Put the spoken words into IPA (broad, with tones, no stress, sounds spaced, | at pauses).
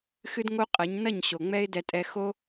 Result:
x ɨ˦ d ŋ o˦ qʼ ɐ˨˦ ɲ n ɐ˦˨ ɲ ɕ o˨ ŋ͡m ɛ˦ ɪ̯ d ɛ˧ tʼ ɛ˧ x o˦